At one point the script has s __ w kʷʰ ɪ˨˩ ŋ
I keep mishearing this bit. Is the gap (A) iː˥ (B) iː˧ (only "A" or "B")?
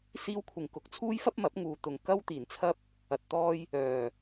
B